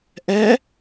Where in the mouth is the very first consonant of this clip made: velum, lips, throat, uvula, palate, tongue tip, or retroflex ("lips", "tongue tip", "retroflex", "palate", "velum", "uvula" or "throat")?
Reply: throat